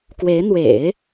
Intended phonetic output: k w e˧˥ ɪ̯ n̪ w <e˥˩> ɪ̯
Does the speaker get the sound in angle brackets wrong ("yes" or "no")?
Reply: yes